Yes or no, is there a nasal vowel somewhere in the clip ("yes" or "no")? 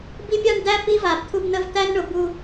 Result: no